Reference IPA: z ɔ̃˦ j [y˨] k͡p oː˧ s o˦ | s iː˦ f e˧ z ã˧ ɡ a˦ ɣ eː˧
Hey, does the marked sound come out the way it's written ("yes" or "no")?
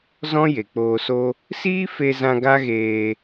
no